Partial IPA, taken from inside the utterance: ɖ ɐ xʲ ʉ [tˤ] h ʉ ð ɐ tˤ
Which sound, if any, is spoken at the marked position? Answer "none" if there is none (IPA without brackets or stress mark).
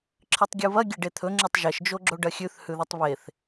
θ